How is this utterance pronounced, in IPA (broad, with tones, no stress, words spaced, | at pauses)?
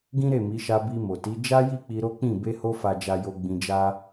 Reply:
ɡĩ˦ɾe˦˨mi˨˦ʃa˧ bi˧mo˨ti˨˦ d͡ʒa˦ji˦˨ k͡pi˧ɾo˦k͡pĩ˦˨ be˧ho˧fa˨d͡ʒa˨ jo˧ɡ͡bĩ˧d͡ʒa˦